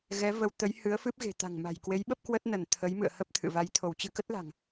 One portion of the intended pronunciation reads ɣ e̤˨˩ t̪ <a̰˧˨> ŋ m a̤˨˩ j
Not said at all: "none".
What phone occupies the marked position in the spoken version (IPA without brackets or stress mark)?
a̤˨˩